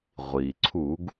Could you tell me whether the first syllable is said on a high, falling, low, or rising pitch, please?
low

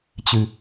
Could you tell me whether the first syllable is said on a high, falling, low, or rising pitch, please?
low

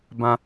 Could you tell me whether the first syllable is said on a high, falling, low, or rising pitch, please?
low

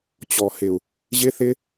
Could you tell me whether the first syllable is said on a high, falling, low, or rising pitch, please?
low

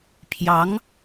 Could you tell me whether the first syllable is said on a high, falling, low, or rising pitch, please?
rising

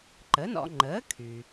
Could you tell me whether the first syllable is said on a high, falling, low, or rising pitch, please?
rising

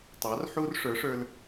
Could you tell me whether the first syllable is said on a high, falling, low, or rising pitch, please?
rising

